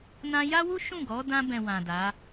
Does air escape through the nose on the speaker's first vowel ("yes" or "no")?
yes